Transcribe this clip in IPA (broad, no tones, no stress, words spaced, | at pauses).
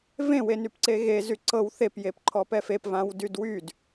vẽ wenypǀeɣe zyǀɤw θep jepǃʰɔpɛfep vãwdydwyd